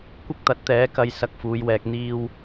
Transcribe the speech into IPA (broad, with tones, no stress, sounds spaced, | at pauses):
kʷ ɪ˥ k̚ t̪ ɐ˨˥ t̚ t̪ ɛː˨˥ k ɐ˧ j s ɐ˧ k̚ f uː˨˧ j w ɛː˧ k̚ n̪ iː˧ w